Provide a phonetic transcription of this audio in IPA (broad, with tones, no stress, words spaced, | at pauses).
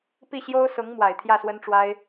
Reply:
pi˥˩ɕjo˥ʊ̯sʊ˧˥ŋ mwa˨˩ɪ̯t̪ʰjä˥˩swə˥nʈ͡ʂwa˥ɪ̯